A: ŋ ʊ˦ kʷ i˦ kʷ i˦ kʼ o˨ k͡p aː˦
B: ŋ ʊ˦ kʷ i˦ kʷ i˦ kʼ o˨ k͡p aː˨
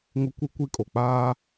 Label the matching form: A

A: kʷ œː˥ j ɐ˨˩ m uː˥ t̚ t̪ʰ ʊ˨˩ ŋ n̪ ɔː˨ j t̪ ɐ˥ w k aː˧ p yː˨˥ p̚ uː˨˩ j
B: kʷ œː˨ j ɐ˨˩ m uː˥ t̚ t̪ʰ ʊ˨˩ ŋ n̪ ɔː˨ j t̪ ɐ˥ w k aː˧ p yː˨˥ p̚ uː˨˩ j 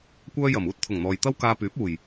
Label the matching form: A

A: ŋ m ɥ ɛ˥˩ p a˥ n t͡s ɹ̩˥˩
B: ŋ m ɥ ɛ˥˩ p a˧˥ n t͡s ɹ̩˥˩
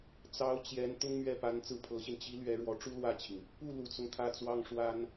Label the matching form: B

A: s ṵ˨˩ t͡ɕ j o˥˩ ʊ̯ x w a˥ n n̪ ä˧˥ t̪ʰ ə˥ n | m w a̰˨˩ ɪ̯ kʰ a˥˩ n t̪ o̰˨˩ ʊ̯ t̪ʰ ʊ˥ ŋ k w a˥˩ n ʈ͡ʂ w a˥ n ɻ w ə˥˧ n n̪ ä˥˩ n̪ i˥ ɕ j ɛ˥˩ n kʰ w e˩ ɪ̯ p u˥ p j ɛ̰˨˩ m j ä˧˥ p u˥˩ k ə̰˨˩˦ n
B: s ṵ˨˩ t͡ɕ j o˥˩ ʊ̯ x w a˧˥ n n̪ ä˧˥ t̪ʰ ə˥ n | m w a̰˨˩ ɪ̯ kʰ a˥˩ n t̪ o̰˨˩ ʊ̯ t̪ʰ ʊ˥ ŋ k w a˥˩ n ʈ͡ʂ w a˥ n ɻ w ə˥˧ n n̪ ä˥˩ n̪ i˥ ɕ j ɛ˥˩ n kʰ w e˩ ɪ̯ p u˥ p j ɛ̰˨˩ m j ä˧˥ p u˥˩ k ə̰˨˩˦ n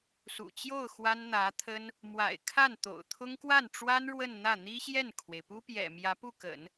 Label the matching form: A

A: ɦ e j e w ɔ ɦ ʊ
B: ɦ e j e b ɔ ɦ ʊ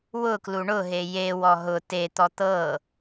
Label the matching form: A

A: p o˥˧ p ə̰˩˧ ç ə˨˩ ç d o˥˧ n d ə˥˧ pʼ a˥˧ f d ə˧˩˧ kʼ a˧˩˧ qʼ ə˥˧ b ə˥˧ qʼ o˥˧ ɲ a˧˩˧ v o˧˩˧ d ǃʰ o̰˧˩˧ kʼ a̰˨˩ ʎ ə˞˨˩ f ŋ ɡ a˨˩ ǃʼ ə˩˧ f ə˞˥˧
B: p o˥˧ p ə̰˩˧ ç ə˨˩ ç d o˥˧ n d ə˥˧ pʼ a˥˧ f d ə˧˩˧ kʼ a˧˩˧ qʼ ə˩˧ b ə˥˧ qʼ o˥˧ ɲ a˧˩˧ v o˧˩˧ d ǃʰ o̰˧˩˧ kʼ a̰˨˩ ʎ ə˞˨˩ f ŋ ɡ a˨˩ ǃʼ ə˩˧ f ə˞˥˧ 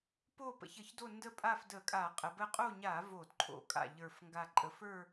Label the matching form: B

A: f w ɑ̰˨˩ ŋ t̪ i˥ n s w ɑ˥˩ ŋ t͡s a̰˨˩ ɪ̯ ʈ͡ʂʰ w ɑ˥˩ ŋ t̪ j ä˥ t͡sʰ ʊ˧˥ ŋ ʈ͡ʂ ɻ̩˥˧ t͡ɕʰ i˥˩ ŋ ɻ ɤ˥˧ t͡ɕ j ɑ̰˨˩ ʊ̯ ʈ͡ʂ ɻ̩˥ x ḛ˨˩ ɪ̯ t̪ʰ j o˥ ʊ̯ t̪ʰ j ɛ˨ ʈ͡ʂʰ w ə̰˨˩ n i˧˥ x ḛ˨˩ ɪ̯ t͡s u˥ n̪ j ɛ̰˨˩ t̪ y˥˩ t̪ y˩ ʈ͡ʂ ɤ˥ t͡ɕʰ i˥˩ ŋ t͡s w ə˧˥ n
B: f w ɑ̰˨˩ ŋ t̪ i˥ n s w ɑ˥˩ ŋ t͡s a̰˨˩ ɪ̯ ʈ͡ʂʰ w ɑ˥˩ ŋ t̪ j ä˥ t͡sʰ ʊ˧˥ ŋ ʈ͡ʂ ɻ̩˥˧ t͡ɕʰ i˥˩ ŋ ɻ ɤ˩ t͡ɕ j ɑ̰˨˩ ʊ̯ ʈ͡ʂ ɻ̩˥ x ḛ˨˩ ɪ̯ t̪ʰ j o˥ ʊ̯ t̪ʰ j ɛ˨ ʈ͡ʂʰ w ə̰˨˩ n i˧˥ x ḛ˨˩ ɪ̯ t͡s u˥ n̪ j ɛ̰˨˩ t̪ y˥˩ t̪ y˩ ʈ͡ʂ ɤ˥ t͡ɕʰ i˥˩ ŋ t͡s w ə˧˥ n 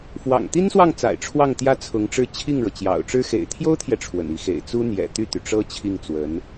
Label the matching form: B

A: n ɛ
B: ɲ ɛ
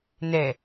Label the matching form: A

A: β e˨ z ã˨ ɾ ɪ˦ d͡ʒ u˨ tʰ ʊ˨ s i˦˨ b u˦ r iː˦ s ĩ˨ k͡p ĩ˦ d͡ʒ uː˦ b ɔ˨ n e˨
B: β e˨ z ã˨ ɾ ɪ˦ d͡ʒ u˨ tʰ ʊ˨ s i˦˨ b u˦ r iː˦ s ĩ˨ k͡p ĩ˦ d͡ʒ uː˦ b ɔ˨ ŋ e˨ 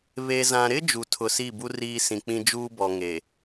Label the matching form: B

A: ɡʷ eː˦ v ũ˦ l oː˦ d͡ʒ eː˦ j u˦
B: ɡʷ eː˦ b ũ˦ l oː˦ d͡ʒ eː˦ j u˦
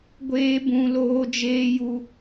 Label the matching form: B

